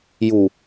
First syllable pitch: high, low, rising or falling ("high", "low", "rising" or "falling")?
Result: low